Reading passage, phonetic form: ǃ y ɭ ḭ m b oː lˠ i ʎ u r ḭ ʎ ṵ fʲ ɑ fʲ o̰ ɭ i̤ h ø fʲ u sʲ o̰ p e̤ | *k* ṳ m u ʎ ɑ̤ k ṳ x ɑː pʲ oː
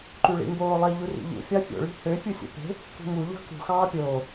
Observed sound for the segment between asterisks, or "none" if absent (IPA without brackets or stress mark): k